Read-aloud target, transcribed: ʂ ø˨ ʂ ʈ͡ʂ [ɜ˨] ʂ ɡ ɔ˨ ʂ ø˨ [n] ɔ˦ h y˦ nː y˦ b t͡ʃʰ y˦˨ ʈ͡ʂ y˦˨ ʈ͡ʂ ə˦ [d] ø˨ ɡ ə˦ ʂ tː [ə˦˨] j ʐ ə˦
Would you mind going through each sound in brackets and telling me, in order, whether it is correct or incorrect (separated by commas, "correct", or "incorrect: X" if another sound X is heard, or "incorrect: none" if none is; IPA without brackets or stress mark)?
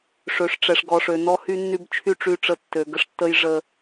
incorrect: ɛ˨, correct, incorrect: tː, incorrect: ə˦